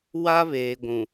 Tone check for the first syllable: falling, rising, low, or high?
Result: high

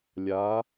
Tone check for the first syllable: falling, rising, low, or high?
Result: rising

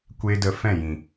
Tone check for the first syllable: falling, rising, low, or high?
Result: high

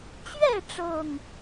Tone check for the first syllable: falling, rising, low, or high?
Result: falling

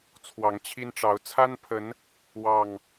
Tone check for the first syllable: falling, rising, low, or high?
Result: rising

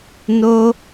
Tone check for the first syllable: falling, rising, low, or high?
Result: high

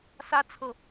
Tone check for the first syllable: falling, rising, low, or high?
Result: high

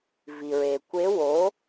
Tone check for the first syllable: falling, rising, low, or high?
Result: low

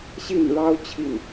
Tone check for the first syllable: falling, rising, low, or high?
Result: falling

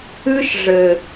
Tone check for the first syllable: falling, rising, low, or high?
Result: high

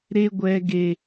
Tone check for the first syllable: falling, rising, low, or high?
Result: high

